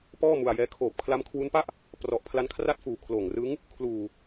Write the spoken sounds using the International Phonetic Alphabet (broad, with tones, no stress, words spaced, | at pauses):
pɔː˥˩ mu˧a̯jɛː˦˥ kʰoː˨˩p̚kʰla˦˥mkʰwu˦˥npa˥˩ʔ | prɔ˨˩ʔpʰla˦˥nkʰra˥˩t̚fuː˨˩ kʰloː˨˩ŋrɯ˦˥ŋ | kʰluː˨˩